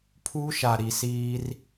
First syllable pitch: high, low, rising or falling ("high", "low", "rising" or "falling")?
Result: high